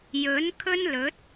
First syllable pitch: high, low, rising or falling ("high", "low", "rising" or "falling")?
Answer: rising